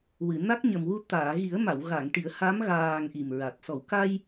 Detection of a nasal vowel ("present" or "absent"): absent